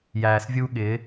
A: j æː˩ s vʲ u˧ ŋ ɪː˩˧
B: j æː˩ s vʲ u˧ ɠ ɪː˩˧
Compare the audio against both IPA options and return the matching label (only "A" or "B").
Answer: B